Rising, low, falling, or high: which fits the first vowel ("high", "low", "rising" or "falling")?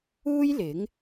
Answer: high